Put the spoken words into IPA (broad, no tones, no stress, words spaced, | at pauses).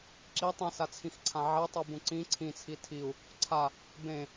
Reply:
ǁi tˤĩsat͡sʰĩxǀʰã ʕɛtˤubũ ǀĩ ǀʰĩt͡sʰi tʰiu̯ | ǀʰa | bẽ